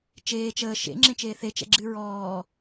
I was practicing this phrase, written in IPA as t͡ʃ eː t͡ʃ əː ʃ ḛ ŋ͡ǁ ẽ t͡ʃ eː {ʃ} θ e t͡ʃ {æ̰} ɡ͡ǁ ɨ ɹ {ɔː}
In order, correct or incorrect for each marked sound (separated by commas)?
incorrect, incorrect, correct